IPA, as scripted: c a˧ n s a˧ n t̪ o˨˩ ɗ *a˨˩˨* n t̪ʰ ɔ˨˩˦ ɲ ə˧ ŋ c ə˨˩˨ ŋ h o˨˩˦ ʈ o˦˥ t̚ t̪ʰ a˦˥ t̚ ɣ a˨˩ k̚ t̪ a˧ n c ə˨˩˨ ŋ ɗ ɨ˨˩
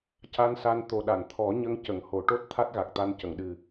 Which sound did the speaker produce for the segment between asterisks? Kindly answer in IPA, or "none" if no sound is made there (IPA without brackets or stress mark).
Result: a˨˩˨